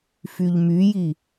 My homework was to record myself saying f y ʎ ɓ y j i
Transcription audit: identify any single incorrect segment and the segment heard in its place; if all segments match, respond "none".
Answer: ɓ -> m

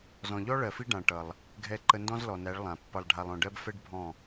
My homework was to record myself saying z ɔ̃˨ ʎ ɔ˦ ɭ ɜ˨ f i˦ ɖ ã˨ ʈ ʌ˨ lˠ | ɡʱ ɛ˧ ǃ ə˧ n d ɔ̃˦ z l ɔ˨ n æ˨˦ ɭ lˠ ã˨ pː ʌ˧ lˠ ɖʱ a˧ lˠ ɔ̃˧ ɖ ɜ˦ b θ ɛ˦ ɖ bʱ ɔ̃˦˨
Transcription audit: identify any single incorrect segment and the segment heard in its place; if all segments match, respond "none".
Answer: θ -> f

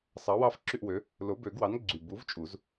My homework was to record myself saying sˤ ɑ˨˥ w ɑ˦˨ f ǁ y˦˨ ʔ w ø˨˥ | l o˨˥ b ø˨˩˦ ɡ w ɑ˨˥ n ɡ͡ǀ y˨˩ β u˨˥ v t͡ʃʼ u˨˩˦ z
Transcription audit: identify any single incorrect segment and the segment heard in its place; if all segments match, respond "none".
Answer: β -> b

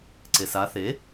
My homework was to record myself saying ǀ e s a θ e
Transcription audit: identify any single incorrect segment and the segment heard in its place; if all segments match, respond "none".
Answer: none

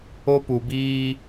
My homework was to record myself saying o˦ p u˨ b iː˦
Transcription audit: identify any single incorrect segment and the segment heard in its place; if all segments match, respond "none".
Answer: none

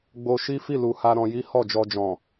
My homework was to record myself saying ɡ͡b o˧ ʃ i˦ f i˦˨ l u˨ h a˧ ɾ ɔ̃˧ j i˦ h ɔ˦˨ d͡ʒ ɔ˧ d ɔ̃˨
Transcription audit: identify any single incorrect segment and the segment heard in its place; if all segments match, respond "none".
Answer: d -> d͡ʒ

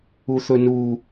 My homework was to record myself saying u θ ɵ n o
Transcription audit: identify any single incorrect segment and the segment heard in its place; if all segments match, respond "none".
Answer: o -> u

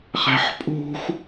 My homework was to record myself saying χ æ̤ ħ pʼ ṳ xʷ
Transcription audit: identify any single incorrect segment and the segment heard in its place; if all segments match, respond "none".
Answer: none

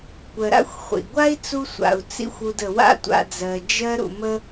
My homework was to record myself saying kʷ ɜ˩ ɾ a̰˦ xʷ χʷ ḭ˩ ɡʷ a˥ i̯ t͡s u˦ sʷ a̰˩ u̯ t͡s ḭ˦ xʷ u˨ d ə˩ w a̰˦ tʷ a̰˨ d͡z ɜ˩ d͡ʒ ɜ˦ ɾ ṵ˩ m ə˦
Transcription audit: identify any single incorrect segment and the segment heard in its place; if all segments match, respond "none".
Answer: none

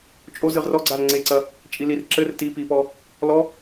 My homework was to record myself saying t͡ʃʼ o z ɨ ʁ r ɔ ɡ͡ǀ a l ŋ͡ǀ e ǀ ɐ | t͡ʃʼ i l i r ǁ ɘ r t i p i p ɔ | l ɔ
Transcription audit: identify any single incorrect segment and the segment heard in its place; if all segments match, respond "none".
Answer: none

